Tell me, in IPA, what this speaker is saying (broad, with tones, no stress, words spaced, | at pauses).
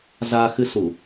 zaː˧ xɨ˧su˧˩˨